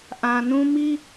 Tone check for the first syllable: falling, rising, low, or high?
low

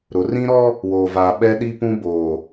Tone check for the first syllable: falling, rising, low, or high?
rising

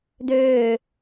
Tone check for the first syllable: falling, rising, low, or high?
falling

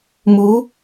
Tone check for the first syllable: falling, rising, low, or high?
rising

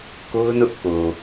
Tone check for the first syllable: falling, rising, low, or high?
high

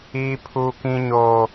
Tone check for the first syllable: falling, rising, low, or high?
high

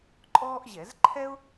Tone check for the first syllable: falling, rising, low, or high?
high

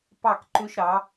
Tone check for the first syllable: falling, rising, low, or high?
falling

